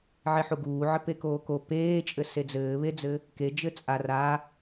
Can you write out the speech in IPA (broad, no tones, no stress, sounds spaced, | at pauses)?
ʕ e ħ u ɡ uː ʕ ɘ p e k oː k o p eː t͡ʃʼ ɘ s e d͡z ɘː β e d͡z ɘ | k e d͡ʒ ɘ t͡sʼ a r a